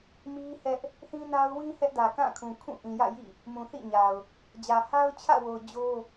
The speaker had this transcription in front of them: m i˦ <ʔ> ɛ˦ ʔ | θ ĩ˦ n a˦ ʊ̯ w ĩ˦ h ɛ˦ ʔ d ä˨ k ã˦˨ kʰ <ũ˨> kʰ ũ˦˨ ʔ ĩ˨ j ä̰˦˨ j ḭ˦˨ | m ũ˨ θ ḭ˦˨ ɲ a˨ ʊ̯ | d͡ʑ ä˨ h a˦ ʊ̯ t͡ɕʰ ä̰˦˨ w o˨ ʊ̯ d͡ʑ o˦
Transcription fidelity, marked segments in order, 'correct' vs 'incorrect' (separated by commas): incorrect, correct